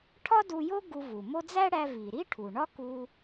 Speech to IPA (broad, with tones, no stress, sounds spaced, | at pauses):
ʈʰ ɒ˥ d u˧ j o˥ ɡ u˧ v u˩ m o˥ d͡z æ˥ ɽ æ˧ v i˩ ɾ i˥ ʈʰ u˩ ɳ ɒ˥ k u˧